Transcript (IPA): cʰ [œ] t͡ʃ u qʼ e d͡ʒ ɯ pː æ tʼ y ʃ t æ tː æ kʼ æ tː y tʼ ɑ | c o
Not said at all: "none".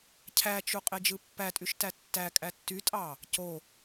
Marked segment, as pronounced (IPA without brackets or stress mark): æ